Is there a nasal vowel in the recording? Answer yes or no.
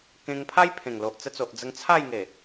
yes